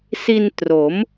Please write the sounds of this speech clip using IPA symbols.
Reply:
s i˧ n t r o˩˦ m

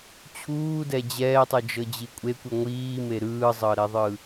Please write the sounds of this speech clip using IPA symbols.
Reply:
t͡ɕʰ uː d ɛ d͡ʑ ɛː tˤ ɯ d͡ʒ ɤ d͡ʑ i kʷʼ e kʷ i ŋʷ iː m e ɾ ɯː zˤ ɤ ɾ ɛ ðˤ ɯ

